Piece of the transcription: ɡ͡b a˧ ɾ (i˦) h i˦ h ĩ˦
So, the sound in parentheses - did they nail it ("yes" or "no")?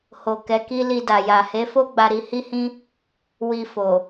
no